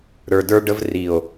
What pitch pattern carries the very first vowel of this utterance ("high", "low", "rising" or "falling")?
low